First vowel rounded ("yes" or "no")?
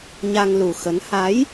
no